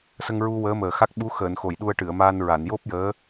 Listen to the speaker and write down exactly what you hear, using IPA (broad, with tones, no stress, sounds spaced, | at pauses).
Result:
s ə˧ ŋ ɹ u˧ w əː˧˥ m əː˨˩ x a˦˥ k̚ ɓ u˧˥ x əː˨˩˨ n x o˨˩˨ j ɗ u˧ ə̯ ʈ ɨ˨˩˨ ə̯ m aː˧ n ɹ a˨˩˨ n j o˦˥ p̚ j əː˧˥